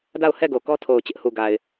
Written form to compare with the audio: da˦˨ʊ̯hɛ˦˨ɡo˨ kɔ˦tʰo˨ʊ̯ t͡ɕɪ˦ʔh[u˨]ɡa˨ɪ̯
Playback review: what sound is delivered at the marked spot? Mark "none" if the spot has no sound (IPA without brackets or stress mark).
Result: u˨